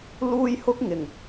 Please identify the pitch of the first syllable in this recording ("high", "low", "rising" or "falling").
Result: high